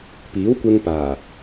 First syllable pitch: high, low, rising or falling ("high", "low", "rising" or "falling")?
rising